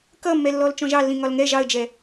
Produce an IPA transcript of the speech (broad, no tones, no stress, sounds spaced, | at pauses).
k ʌ mː ɛ lː ɔ l t͡ʃ ɔ̃ ʒ ɑ lː ĩ ŋ ɒ l ŋ ɛ ʒ ɑ ə̯ d͡ʒ ɛ